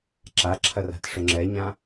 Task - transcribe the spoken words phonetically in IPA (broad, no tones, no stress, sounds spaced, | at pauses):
ǁ a ǁʰ ɐ r a̤ t ʂ ʊ ŋ͡ǁ ɛ ɲ ã